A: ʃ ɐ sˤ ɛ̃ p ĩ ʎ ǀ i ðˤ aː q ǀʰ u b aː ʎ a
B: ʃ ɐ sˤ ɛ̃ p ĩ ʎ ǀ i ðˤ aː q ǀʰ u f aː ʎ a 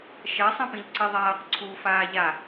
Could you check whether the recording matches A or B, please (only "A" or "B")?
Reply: B